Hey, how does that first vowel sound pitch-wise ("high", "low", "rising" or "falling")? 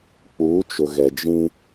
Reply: rising